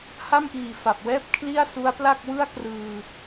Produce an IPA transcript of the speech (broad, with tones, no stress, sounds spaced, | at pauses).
h a˥˩ m ʔ iː˨˩ f a˨˩ p̚ w ɛː˥˩ p̚ kʰ l i˥˩ a̯ s u˦˥ a̯ p l a˥˩ k̚ w ɯ˥˩ a̯ k r ɯː˧